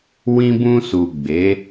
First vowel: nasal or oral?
nasal